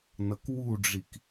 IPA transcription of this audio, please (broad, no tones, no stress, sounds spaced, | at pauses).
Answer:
n ʌ k w u ɖ͡ʐ i k